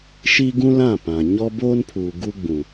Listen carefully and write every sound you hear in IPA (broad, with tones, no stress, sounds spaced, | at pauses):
ʃ i˦ ɡ ũ˦ l ã˦˨ p ã˨ ɲ ɔ˦ b oː˦ n pʰ uː˨ ɡ u˦ ɡ͡b ũ˨